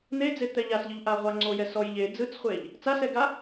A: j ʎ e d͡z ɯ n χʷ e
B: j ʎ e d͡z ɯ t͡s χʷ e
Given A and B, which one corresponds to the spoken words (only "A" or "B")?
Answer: B